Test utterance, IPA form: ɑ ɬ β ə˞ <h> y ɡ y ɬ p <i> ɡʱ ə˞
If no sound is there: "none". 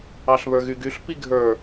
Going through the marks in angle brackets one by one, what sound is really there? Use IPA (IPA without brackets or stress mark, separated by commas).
ɣ, i